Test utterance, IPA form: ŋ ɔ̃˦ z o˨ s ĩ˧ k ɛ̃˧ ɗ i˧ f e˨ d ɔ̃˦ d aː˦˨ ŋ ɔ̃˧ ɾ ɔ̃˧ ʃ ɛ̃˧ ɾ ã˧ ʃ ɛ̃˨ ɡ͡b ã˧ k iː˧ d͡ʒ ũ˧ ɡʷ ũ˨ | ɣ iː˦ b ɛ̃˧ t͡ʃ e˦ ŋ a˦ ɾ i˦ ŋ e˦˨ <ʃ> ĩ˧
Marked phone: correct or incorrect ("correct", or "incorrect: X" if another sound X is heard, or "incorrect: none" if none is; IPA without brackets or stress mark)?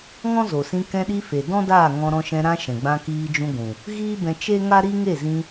incorrect: z